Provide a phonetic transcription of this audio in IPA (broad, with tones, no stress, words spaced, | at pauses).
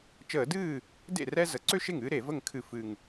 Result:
t͡ʃəː˧˩˧dɨː˥˩ | dḛ˥˩ rɛ˥ zə˩˥ǀø˥ʃe˥˩ŋ ɨː˥ɾe˧˩˧ və˥˩ŋkʰɨ˧˩˧ fɨ˨˩ŋ